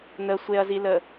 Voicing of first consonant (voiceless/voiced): voiced